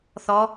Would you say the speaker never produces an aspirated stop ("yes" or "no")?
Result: yes